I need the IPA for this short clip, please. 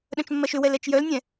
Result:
ɗ œ̃ t͡ʃ mː ɜ ʃ ʏ w ɛ l ɛ t͡ʃ j œ l nʲ ɛ̃

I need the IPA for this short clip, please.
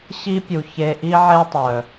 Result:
ɕ i˦ pʲ u˨ ç e˧ ʔ i˦ ʕ e˦ tˤ œ˨

